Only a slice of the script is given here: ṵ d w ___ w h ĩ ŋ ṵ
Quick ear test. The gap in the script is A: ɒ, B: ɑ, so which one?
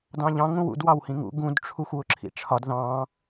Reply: B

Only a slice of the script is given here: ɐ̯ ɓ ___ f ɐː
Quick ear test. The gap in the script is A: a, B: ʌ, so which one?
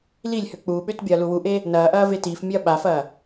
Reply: A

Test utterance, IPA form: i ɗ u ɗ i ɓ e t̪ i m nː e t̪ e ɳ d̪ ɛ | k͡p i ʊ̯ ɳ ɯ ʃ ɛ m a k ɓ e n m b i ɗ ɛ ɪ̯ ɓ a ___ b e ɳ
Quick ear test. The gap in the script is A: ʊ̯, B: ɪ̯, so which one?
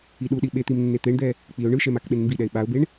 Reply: A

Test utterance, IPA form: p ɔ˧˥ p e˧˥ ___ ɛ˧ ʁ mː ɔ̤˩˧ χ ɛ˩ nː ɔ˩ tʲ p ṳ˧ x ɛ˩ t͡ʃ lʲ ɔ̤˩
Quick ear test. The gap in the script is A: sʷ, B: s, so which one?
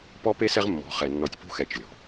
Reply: B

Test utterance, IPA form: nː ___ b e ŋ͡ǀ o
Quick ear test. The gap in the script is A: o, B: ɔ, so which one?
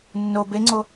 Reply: A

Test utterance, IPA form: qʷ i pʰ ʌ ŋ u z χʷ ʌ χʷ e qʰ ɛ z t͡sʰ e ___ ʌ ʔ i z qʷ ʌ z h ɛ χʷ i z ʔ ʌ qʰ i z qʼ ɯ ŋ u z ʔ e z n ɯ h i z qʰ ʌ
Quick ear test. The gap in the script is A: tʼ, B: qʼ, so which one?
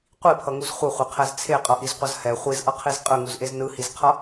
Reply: B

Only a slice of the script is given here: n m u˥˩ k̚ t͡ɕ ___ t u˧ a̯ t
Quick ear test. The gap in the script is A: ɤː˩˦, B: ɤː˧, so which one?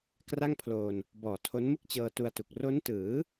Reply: B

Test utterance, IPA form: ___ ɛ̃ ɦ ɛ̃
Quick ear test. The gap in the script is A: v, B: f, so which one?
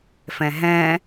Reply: B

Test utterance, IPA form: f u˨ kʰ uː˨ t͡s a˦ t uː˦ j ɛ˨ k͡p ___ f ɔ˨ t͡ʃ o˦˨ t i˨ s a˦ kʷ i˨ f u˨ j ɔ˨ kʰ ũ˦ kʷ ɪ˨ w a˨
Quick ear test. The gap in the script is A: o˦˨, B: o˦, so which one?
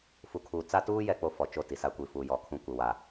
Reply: A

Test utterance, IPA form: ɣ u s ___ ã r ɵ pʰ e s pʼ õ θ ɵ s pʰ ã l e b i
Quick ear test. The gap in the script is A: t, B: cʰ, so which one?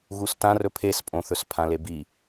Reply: A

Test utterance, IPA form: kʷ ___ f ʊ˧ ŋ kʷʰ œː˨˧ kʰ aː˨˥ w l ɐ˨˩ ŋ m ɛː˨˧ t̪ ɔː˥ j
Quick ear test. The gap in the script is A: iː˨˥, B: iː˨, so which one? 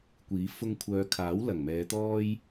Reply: A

